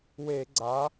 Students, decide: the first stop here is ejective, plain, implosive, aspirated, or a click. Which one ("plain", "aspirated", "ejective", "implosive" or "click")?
click